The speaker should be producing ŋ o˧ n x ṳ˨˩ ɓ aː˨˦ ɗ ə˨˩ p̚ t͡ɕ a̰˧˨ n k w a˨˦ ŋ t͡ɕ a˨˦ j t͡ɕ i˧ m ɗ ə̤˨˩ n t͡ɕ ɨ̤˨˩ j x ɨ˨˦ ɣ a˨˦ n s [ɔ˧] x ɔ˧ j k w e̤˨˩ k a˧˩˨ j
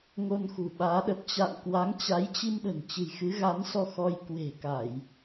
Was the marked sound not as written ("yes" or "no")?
no